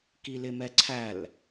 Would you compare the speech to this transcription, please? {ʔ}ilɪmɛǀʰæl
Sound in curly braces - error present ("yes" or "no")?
yes